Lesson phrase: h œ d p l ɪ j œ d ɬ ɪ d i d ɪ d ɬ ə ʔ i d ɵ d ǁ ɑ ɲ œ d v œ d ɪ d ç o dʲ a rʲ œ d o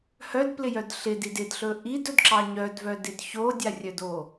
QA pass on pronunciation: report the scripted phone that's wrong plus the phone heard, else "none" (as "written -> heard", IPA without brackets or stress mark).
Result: ə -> ɵ